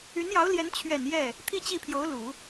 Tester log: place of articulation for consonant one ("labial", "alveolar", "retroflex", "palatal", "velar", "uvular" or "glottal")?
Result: alveolar